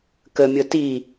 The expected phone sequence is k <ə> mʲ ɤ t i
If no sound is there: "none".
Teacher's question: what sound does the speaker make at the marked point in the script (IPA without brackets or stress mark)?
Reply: ə